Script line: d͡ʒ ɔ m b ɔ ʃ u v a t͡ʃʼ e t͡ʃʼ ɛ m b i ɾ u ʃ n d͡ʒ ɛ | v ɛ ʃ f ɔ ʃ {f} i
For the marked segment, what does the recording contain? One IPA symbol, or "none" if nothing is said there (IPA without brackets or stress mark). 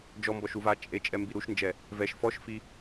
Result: f